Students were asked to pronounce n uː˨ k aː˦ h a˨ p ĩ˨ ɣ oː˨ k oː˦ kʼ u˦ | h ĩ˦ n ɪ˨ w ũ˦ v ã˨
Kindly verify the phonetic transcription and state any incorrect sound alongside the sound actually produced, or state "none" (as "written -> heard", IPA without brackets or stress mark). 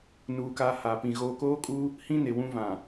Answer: none